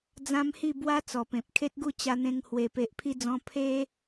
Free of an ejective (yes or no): yes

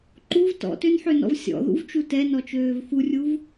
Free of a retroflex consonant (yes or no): yes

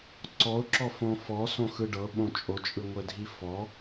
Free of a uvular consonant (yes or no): yes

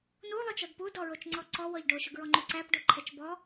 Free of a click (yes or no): no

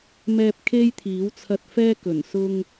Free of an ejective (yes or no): yes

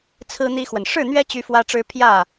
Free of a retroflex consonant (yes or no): no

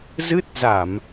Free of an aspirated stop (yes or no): yes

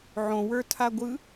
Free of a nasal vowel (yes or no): no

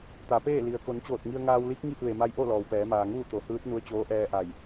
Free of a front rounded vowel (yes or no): yes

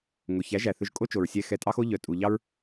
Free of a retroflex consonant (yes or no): yes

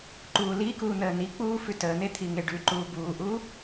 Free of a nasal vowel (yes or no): yes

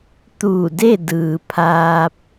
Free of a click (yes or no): yes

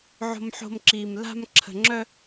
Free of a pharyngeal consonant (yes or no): no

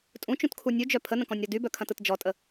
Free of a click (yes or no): yes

